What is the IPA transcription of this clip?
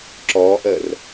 ǁ ɔː ʔ əː r

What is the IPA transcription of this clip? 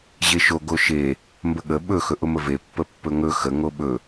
ʑ e ʃ o ɡ o ʃ e | m b ə ɠ ə ɓ ɵ x ɵ ʔ ʊ m ə v e pː ə pː ɵ ŋ ɵ x ə ŋ o ɓ ɵ

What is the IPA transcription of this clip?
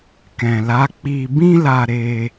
k ɛ̃˨ l a˨˦ k͡p i˧ b ĩ˦ l a˧ ɾ e˧

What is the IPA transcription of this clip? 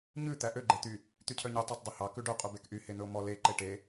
ɲ ʉ t̪ æ ʔ ø ɡ͡ǃ e t̪ y | t̪ y cʰ œ ɲ y tˤ æ tˤ dˤ u h ɑ k ʉ ɖ œ qʼ u b e k ʔ y h e n̪ ɵ o̯ m ɔ l e ǃ e ʈ e

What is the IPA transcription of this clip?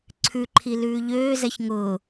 ǀʰ ʉ ǃʰ i l ʉː ʎ øː z ɛ ç ŋ ʊː

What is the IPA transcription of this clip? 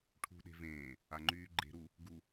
ʈʰ ṳ ɗ e̤ v ẽː | a ŋ͡ǃ yː ɡ͡ǃ e̤ ɾ u | ɡ u

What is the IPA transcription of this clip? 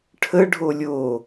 ʈʰ ə ɖʱ o lʲ o

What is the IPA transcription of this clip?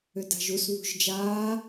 ʏ d a̤ ʒ u s β ṳ ʒ d͡ʒ aː

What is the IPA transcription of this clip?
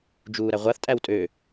d͡ʒ uː ɾ æ ʁʷ a θ tʼ æ w tʼ ø

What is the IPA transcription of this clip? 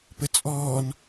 p ə t͡sʼ ɔː n

